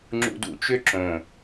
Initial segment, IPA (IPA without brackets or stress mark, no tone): ŋ͡ǁ